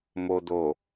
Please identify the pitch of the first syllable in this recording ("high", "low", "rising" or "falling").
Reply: low